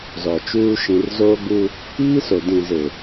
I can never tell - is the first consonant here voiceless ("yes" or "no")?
no